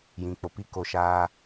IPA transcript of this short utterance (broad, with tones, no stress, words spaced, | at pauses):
jĩ˨ k͡po˨pi˦ko˦˨ ʃaː˦